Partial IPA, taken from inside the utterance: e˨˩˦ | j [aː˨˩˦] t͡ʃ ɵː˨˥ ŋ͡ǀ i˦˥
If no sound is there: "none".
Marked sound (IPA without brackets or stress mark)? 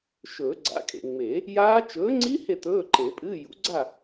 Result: aː˦˥